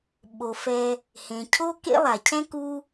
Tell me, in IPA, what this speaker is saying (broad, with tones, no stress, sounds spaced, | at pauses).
ɓ o˩ f ɛ˨ | h ẽ˩ cʰ o˦ k ḛ˦ lˠ a˩ cʰ ɛ̃˥ k u˦